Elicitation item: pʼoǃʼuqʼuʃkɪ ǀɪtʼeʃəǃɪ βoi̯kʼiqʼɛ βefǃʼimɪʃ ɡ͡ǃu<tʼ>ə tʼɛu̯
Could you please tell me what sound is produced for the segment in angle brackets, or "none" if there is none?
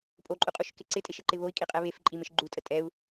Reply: tʼ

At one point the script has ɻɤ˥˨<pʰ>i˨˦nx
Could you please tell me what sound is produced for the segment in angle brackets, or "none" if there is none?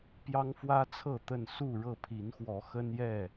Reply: pʰ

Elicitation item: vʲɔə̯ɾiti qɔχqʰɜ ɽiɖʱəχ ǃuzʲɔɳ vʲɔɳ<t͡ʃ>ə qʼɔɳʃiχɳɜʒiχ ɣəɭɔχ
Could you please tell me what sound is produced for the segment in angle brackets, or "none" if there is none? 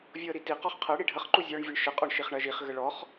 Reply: ʃ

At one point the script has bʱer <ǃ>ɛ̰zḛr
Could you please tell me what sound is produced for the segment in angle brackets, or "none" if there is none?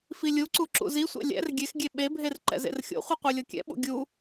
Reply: ǃ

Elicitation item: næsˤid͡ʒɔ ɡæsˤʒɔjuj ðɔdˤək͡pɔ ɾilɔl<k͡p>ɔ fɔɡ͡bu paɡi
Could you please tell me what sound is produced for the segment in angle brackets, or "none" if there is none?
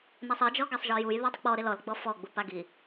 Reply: ɡ͡b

